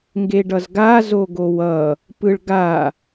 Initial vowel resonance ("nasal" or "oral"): oral